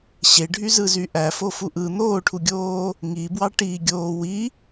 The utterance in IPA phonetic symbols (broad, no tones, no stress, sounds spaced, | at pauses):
ɕ e ɖʱ y z ɯ z y ʔ æ f o f u ʔ ɯ n̪ oː ʈʰ u ɡʲ oː | ŋ i b w ɑ ʈ i ɡʲ oː w i